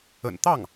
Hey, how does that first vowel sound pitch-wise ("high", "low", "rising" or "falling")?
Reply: low